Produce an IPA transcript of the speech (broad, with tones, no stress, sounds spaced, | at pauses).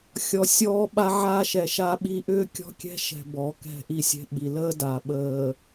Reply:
xʲ ɔ˨ sʲ ɔː˦ ɓ a˦ ʕ aː˦ ʃ ɛ˨ ʃ a˦ ɓ i˦ ʔ ʏː˦ kʲ ɔ̤˦ kʲ ɛ̤˦ ʃ ɛ̤˨ b ɔ˨˦ k ɛ̤˦˨ ʔ i˦ sʲ ɛ̤˦ ɓ i˨ l əː˦ d a˨ ɓ əː˨